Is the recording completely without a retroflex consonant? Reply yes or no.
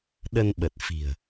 yes